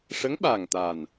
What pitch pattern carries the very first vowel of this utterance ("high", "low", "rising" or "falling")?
rising